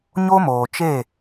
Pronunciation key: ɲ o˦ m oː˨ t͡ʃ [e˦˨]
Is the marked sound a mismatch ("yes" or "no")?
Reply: no